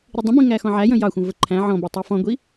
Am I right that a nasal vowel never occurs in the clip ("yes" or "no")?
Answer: no